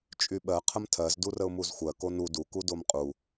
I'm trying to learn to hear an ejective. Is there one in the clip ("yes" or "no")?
yes